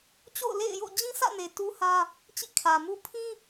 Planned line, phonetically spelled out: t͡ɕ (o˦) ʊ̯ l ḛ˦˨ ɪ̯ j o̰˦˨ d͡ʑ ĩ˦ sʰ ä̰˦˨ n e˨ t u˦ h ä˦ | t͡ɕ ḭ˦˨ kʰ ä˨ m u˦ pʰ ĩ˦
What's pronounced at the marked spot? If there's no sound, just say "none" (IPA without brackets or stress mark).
o̰˦˨